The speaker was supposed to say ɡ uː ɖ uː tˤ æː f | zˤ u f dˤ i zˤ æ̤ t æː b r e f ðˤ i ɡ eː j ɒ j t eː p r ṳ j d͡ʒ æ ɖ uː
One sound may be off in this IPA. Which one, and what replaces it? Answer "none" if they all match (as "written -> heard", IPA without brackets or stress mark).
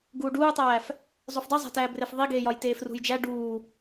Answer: p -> f